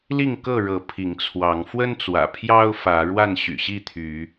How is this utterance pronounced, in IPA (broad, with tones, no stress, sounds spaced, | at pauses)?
l i˥˨ ŋ k ɤ˥˨ ɻ ɤ˨˦ pʰ i˨˦ ŋ t͡sʰ w ɑ˨˦ ŋ f w ə˦ n t͡s w ä̰˨˩ pʰ j ɑ˦ ʊ̯ f ä˨˦ ɻ w a˥˨ n ɕ y̰˨˩ ɕ i˥˨ t̪ʰ y˨˦